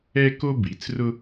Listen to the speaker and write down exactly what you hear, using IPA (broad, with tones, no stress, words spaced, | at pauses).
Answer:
ɛ˥ ko˥bi˩˥t͡srʊ˥